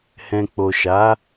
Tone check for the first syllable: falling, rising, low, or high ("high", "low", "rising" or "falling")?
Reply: low